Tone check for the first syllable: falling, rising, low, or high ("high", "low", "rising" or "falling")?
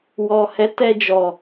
low